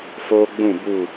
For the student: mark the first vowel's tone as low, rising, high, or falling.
high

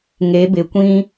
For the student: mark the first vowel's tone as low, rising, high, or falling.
rising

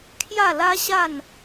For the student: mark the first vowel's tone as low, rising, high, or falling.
falling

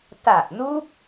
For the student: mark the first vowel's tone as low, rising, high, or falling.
low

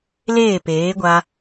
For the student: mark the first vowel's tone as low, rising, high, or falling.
falling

